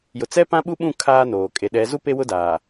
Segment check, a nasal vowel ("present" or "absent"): present